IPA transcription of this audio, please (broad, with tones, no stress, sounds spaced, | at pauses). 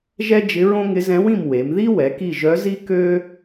ʒ ɛ˥ d͡ʒ ɪ˧˥ ɹ õ˥ ŋ ɪ˧˥ z ɛ̃˧˥ w ĩ˦˨ m w e˩˧ m ð i˥ w ɛ˩˧ k i˦˨ ʒ œ˧˥ z i˥ k ø˥